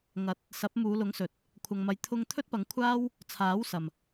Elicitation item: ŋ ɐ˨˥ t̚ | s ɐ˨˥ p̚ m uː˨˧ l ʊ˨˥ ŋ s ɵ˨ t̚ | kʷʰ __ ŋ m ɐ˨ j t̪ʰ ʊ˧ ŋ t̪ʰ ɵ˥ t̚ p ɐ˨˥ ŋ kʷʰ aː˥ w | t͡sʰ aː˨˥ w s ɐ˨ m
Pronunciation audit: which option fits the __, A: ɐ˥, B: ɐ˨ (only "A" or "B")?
B